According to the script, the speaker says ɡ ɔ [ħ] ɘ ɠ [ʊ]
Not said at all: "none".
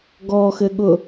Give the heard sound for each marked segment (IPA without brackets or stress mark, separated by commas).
x, ʊ